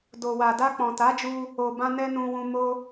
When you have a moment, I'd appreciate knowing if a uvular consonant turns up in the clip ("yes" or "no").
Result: no